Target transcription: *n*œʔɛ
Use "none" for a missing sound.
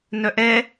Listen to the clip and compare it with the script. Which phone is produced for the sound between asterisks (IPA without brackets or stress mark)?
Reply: n